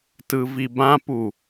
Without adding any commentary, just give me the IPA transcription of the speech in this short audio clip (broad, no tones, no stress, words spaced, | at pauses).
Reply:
tɯvibãpu